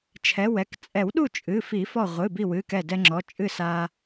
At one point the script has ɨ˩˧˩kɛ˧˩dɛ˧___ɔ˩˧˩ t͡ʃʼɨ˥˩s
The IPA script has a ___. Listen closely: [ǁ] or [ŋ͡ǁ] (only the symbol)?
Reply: ŋ͡ǁ